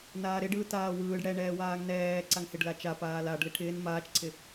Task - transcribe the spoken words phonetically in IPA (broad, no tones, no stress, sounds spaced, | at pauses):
n aː ɾ ɪ ɖ ɯː t aː w ɯː ɖ ɽ ɛ ɳ ɛː w aː ŋ n ɛː ǀ a ŋ h ɪ ɖ l a t͡ʃ a p aː l a ɖ l ɪ ʈʰ ɪː n m aː t͡ʃ ǀʰ ɪ